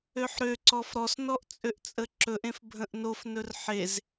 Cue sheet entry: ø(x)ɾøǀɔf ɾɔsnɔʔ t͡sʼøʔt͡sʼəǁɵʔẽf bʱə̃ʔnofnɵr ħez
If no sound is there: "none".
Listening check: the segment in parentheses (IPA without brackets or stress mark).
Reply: ħ